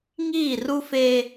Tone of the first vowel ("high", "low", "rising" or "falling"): falling